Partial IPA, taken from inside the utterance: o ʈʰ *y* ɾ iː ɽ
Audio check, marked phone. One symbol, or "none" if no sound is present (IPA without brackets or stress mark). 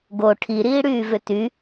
i